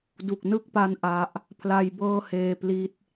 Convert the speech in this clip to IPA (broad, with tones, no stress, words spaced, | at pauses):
du˨˩k̚nɯ˦˥k̚pa˦˥n ʔa˦˥ʔ | pʰla˧jbɤː˥˩heː˧pli˦˥t̚